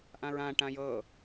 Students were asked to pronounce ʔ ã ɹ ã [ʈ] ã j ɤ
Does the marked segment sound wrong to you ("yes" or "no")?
no